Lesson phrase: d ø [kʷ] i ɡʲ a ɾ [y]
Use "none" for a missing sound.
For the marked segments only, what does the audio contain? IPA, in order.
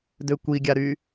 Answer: kʷ, y

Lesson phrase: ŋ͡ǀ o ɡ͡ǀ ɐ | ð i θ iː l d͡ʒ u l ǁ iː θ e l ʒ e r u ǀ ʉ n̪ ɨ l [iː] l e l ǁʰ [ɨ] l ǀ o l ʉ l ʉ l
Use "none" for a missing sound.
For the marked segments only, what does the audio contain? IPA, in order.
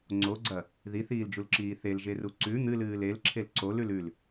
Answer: ɨː, e

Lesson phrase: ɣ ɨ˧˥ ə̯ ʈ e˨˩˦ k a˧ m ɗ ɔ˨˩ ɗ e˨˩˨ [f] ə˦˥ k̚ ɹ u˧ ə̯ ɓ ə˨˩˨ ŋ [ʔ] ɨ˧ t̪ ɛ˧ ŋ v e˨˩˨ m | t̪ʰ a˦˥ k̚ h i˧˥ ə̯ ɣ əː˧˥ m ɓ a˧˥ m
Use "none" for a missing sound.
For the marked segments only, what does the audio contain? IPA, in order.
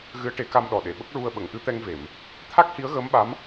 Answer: ɓ, ʔ

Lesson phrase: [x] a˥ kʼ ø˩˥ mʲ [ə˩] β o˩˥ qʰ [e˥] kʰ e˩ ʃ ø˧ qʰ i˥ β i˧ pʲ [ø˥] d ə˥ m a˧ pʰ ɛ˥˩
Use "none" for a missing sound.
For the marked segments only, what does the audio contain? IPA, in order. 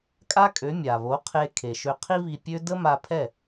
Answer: kʼ, a˩, e˧, ø˥

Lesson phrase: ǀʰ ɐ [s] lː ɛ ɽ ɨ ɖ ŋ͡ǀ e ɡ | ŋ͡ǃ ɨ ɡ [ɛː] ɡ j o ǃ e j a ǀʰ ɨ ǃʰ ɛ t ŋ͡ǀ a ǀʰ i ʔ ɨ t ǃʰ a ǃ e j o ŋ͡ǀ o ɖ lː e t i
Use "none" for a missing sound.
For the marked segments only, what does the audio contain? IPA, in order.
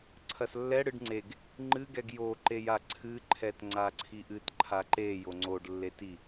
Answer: s, ɛ

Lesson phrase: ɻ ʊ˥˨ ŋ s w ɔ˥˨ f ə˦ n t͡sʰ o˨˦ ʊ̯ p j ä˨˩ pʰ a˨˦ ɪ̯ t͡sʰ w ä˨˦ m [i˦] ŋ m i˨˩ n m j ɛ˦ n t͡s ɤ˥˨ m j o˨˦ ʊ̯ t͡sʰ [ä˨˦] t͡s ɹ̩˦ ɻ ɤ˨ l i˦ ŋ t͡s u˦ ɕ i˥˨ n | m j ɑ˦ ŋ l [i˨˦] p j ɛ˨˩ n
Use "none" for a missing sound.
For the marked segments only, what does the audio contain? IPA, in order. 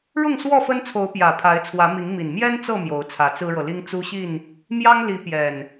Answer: i˨˦, ä˨˦, i˨˦

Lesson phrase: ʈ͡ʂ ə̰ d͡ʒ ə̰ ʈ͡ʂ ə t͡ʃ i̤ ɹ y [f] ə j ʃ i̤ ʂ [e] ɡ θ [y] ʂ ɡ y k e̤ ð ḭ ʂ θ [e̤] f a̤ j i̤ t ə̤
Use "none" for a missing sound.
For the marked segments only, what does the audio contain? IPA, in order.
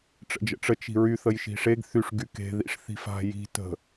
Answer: θ, e, y, i̤

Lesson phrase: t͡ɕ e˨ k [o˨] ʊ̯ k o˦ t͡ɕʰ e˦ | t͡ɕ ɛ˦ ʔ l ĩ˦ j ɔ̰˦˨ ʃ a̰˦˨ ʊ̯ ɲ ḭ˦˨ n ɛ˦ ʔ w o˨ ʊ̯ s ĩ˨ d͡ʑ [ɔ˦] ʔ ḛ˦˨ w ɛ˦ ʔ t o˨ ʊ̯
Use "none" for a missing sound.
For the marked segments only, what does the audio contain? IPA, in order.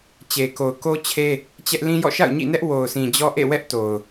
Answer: o˨, ɔ˦

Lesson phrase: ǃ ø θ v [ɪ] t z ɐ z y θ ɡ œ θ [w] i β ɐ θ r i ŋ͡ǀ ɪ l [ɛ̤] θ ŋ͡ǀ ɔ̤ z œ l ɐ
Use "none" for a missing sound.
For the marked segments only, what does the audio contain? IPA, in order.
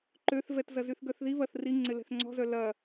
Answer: ɛ, ð, ɛ̤

